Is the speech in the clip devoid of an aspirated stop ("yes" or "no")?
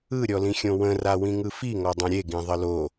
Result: yes